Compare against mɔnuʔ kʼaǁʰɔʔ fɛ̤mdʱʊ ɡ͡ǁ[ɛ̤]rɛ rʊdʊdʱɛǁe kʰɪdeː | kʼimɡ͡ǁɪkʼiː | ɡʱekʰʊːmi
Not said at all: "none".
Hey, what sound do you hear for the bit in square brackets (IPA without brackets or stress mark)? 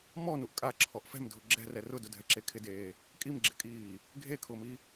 ɛ̤